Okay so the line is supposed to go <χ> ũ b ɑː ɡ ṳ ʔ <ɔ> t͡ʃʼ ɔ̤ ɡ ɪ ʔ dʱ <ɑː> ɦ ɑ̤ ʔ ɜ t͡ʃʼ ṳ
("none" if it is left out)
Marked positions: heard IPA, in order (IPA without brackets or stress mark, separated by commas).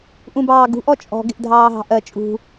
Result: ʔ, ɔ, ɑː